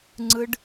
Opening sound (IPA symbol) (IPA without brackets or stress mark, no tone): ŋ͡ǀ